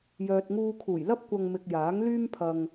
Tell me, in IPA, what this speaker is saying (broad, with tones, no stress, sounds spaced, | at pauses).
j œː˨ t̚ ŋ uː˧ kʰ uː˨˩ j l ɐ˥ p̚ kʷ ɐ˨ ŋ m ɪ˨ k̚ j aː˨˥ ŋ l yː˥ m pʰ ɐ˧ ŋ